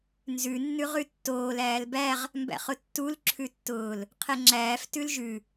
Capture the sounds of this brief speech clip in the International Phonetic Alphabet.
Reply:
n z ʉ nː ʉ ʁ ʉ tː oː l æː l b æ ʁ | m b æ̰ χ ʊ tː u l ǁʰ ʉ tː ʊː l | qʰ ɛ ŋ͡ǁ æː f t ʉ l ʒ ʉ

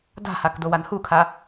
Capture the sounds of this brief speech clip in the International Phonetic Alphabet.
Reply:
d a̤ h a k d o w a n h u kʰ a

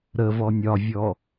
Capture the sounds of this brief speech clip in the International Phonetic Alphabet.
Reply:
ɾ ə v ɔ nʲ ɒ vʲ ɔ

